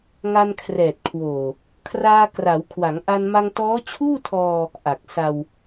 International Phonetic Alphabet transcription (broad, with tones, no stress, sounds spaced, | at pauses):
ŋ a˧ n kʰ r ɛː˨˩ t̚ kʰ w oː˨˩ | kʰ r aː˧ k r a˩˦ w kʰ w a˩˦ ŋ ʔ a˧ n m a˧ ŋ t ɔː˦˥ t͡ɕʰ uː˥˩ tʰ ɔː˧ | ʔ a˨˩ k̚ s a˧ w